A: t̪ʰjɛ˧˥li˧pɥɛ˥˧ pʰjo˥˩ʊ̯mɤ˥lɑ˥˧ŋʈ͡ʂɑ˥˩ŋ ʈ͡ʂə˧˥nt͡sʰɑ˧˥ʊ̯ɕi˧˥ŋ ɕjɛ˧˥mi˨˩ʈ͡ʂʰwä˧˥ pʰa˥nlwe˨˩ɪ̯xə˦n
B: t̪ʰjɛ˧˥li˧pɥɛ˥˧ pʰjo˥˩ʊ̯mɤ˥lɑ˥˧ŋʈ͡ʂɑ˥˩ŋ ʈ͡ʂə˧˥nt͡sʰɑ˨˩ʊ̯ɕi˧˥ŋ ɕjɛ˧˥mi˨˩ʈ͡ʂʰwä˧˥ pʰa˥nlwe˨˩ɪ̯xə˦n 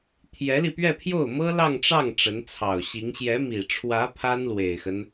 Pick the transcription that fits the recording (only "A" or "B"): B